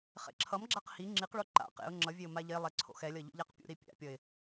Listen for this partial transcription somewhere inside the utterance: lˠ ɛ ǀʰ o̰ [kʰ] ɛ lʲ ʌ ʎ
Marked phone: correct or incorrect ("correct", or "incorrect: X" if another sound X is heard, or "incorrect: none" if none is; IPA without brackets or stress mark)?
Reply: incorrect: x